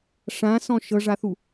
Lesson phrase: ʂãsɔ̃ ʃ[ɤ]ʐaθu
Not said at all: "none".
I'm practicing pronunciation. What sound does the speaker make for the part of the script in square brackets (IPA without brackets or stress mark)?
ɤ